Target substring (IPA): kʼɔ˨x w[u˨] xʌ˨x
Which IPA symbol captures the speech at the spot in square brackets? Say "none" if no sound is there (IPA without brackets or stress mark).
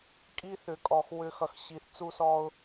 ʏ˨